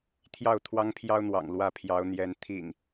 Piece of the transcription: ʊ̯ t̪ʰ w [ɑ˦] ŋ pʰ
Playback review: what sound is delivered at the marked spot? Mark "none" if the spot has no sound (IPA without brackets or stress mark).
ɑ˦